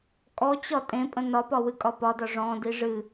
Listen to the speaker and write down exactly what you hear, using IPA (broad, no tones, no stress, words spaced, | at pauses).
kʼɔt͡ɕɒ tʼẽpʼə̃ nɒpɒwɨkʼɒ pɒdɒ ʐɔ̃di ʐɨ